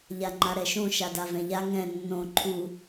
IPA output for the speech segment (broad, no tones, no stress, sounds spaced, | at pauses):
ʎ a ŋ͡ǃ a ɾ ɛ ʃ õ ʃ a d a v ɛ̃ ʎ a ŋ ɛ̃ nː õ ǃʰ u